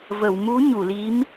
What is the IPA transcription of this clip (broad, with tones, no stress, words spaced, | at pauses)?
və˨˩˨wmu˧˥ ɲu˨˩˨li˧˥m